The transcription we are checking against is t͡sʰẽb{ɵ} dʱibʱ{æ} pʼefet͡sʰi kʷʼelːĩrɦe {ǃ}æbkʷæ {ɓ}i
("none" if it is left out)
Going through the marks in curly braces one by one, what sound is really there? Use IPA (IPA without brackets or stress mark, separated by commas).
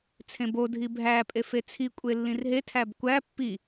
o, æ, tʰ, pː